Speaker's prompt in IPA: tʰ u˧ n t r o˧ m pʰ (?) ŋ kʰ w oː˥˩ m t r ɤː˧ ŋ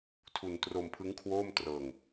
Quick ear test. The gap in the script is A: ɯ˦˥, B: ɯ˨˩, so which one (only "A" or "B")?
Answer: A